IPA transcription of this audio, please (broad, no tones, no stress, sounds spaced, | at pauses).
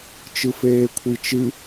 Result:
t͡ʃ ɯ f eː kʷʰ i t͡ʃ ɨ